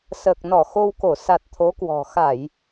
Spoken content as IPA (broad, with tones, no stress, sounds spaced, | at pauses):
s əː˨˩ k̚ n ɔ˧˩ x o˧ w k o˧˩ s a˨˩ t̚ t̪ʰ o˨˦ k w ɔ̤˨˩ x a˧˩˨ j